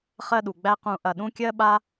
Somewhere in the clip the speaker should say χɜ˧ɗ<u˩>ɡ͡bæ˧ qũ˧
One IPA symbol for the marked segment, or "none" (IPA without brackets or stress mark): u˩